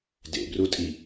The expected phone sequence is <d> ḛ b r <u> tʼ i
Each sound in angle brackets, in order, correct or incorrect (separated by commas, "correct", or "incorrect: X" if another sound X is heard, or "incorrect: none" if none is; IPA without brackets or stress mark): correct, correct